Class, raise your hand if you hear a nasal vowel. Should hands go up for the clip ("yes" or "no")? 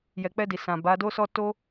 yes